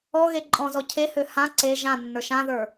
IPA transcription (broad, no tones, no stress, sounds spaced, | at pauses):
ɔ ɣ e ǃʼ ɔ̃ z ɔ cʰ e h ø h ã ǀ e ʒ ã nː ə˞ ʃ ã ð ə˞